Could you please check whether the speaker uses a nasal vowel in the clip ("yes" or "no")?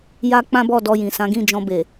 yes